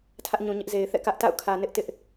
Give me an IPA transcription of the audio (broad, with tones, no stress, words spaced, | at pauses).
tʰä˦ʔɲũ˨ɲɪ˦ʔ ze˨ɪ̯θɛ̰˦˨kä˦ʔta̰˦˨ʊ̯ kʰä˨nɪ˦ʔ tɪ˦ʔ